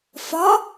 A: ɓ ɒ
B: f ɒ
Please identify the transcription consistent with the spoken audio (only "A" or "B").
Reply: B